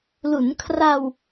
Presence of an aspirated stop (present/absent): present